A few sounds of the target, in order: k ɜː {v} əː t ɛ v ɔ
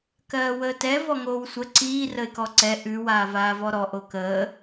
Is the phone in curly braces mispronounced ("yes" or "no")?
yes